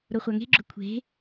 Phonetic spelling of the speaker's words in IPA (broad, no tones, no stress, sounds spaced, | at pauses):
ɾ o χʷ a ŋ e̤ ɡ͡ǁ ɵ kʷʰ e̤